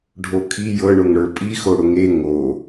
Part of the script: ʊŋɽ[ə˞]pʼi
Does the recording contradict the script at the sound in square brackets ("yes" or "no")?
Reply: no